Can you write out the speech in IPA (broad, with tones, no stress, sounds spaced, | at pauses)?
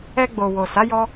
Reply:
ɛ˧ ɡ͡b o˨ w o˨ s a˨˦ j ɔ˧